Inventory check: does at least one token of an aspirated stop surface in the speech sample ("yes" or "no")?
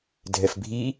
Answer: no